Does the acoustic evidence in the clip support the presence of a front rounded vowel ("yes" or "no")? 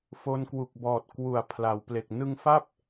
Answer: no